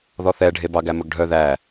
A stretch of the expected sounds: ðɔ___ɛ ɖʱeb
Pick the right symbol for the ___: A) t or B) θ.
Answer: B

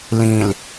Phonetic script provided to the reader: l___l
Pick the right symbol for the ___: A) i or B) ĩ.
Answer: B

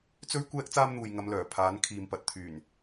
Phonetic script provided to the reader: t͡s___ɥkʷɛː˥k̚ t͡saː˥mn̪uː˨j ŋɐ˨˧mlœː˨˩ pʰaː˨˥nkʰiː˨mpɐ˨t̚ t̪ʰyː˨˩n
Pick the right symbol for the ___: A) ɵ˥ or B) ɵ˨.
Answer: A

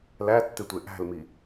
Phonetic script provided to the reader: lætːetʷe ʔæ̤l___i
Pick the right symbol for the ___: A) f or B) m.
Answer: B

